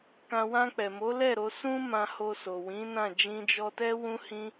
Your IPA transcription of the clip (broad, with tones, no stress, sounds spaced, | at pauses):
k ã˧ w ã˧ k͡p ɛ˨ m o˨˦ l ɛ˦˨ ɾ o˧ s ũ˦ m ã˧ h o˧ s o˨ w ĩ˨˦ n ã˦˨ d͡ʒ ĩ˧ d͡ʒ ɔ˧ t ɛ˦ w ũ˦ h ĩ˦